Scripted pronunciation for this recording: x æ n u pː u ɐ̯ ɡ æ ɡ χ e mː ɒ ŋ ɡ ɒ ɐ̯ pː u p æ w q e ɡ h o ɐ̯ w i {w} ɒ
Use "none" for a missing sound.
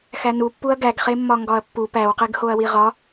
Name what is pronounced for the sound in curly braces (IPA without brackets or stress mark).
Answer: ʁ